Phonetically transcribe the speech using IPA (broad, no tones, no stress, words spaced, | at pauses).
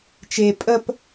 t͡ʃe pʼəp